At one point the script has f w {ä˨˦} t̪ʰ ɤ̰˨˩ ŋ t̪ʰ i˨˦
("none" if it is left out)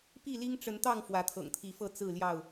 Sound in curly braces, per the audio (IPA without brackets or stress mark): ä˨˦